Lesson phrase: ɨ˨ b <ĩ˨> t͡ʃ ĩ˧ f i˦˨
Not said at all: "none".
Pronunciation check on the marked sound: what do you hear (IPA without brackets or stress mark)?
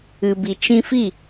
i˨